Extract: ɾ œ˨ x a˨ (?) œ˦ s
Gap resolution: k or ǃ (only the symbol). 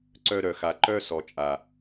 ǃ